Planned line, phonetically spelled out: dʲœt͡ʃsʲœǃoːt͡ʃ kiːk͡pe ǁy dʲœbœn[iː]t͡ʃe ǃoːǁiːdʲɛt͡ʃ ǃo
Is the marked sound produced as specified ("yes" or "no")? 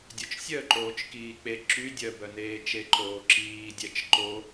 no